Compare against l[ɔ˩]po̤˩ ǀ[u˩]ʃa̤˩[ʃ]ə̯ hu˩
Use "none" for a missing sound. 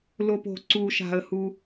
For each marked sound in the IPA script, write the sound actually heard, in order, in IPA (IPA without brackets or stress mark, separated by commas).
o˩, u˩, none